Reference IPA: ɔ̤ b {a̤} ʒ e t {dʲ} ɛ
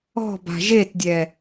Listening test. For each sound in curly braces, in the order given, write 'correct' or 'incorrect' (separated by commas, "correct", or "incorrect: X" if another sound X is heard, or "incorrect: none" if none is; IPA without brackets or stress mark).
correct, correct